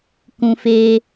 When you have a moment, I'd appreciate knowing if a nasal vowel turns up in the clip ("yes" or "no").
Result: yes